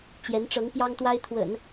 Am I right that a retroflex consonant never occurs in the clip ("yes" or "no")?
no